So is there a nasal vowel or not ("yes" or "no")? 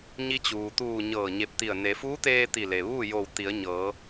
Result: no